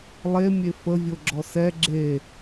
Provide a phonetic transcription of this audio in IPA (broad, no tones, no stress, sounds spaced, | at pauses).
lˠ e mʲ e f ə vʲ o ɡ͡ǁ ɔ s ɛ ɡ͡ǁ e